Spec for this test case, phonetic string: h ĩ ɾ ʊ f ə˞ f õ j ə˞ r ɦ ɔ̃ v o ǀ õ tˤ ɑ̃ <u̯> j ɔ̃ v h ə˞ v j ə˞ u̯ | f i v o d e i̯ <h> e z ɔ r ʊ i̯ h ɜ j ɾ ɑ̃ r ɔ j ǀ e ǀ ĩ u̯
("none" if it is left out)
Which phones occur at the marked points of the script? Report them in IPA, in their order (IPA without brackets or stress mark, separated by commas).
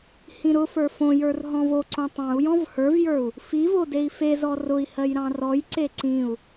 u̯, f